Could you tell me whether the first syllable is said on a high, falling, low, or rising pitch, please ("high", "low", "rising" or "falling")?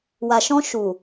low